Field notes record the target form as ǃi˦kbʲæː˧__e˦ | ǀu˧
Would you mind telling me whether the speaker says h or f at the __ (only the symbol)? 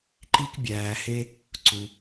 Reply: h